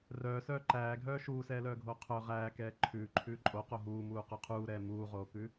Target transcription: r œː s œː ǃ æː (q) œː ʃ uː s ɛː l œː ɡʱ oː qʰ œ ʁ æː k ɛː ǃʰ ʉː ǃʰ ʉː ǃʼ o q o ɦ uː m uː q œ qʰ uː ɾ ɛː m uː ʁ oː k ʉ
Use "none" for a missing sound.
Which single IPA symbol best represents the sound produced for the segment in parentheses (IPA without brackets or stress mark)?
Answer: ɡʱ